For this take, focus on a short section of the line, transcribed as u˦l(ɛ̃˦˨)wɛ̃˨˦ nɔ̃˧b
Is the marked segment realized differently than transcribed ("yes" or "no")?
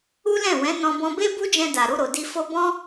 no